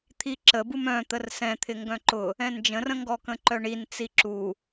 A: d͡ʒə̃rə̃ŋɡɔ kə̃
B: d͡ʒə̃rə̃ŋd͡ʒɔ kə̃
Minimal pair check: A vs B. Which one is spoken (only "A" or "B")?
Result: A